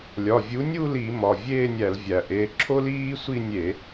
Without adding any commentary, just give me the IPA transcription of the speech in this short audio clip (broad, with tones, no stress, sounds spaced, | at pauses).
lʲ ɒ˩˧˩ vʲ u˨˥ nʲ u˥˧ l i˧˩˧ m ɒ˩˧˩ vʲ eː˥˧ nʲ æ˧˩˧ l vʲ æ˩ ʔ e˩˧˩ ǁʰ o˥ l iː˥ sʷ i˥˧ nʲ e˧˩˧